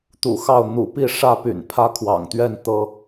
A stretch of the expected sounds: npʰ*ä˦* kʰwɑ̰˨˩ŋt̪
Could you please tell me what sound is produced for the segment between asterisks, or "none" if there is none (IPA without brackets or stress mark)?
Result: ä˦